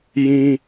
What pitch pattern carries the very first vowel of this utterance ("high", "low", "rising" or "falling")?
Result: high